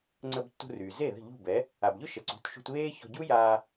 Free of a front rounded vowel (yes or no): no